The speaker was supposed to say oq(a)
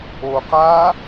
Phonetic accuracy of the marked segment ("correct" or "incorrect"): incorrect